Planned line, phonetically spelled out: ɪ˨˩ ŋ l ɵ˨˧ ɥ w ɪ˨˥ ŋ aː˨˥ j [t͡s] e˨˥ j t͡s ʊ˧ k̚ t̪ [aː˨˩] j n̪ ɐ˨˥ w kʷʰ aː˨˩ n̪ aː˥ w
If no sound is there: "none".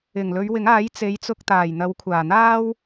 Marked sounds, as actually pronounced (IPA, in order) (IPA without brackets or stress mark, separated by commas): t͡s, aː˨˩